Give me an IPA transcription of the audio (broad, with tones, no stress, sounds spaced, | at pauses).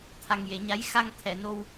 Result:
t̪ʰ a˨˩ ŋ j e˨˩˨ ɲ a˧˥ j x a˧ ŋ t̪ʰ ɛ˨˩˨ n o˧ w